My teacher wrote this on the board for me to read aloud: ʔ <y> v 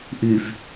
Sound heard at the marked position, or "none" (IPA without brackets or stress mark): y